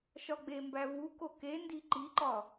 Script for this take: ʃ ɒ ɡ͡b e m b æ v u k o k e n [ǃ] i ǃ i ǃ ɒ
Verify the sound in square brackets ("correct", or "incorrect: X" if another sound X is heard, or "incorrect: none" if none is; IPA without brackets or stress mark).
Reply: incorrect: d